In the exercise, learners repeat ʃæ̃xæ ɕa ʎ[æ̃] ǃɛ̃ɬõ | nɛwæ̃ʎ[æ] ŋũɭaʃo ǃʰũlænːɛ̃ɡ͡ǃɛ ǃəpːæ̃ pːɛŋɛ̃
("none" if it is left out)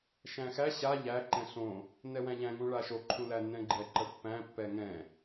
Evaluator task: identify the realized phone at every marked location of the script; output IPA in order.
æ, æ̃

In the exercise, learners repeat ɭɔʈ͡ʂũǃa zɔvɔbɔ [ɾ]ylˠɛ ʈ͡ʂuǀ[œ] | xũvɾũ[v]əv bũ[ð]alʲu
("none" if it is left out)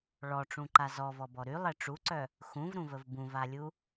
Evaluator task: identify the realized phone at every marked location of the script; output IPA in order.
ɾ, œ, v, v

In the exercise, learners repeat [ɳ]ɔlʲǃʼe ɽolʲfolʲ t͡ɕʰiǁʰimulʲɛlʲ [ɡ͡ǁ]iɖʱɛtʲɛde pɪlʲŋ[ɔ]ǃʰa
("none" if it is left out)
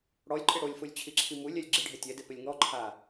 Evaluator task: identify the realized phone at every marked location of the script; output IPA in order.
ɽ, ɡ͡ǁ, ɔ

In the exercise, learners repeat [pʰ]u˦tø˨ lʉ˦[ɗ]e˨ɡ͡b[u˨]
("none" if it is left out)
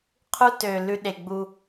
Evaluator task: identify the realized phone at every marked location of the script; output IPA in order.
qʰ, ɗ, u˦

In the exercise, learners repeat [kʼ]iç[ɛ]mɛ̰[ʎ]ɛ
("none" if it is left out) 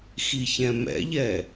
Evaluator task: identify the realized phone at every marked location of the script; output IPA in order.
x, ɛ̃, ʎ

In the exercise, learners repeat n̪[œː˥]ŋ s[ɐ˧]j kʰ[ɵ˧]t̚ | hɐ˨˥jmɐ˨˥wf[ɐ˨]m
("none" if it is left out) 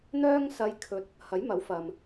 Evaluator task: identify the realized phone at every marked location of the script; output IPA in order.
œː˥, ɐ˧, ɵ˧, ɐ˨

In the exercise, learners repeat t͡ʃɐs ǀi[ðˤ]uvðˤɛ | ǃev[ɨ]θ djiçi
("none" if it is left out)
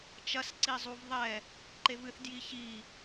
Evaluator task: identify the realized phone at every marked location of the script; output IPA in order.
zˤ, ɨ

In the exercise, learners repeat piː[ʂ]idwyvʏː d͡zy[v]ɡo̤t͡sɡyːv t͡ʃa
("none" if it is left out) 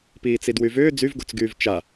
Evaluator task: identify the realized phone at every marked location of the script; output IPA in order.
t͡s, v

